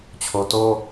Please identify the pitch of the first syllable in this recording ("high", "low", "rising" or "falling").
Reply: low